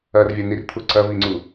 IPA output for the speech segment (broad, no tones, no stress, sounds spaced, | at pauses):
ɐ r vʲ a n i r t̪ʰ u ǀ ɐ v i ŋ͡ǀ u